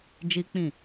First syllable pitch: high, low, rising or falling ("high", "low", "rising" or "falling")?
high